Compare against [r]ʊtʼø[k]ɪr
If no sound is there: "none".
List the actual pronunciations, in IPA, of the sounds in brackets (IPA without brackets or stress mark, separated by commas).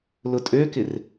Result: l, k